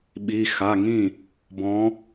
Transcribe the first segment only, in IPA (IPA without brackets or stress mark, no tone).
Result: ɓ